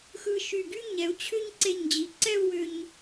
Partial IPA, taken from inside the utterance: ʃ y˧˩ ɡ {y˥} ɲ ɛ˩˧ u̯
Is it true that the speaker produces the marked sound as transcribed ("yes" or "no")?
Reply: yes